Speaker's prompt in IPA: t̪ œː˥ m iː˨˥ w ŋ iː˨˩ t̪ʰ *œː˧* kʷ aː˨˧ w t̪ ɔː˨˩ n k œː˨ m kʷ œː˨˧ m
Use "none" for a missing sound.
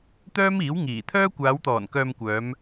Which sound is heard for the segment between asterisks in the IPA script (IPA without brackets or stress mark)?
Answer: œː˥